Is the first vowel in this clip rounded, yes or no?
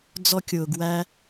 yes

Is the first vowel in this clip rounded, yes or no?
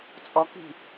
yes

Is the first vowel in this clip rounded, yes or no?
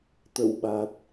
no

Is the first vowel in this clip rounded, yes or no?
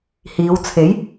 no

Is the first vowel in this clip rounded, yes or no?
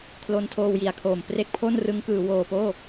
yes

